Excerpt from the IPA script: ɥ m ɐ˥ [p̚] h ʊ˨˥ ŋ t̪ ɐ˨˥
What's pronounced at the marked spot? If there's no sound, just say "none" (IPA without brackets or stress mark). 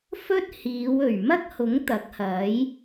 k̚